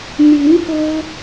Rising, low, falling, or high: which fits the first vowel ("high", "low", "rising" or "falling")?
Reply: rising